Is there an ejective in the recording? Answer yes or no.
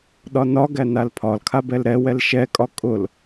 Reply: yes